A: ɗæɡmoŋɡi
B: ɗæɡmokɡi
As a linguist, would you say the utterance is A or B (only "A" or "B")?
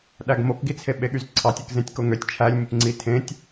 B